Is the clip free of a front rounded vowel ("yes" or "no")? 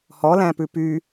no